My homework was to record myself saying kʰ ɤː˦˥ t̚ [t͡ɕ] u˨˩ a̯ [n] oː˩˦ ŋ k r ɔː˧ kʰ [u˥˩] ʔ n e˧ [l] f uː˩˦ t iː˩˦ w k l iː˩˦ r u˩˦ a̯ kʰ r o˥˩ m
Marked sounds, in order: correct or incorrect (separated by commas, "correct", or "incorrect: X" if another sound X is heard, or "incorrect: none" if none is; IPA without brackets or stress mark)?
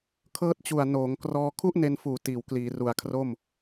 correct, correct, correct, incorrect: n